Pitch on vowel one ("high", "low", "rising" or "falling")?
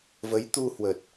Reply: rising